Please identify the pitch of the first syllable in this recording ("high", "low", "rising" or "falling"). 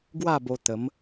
falling